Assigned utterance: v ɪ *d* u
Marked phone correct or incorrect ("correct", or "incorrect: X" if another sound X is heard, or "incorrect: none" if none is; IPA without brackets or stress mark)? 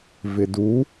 correct